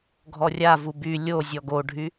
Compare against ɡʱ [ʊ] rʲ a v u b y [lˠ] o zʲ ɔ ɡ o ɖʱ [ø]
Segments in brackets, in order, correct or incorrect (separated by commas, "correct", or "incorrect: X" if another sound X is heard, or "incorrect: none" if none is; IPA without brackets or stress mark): incorrect: ɔ, incorrect: lʲ, incorrect: y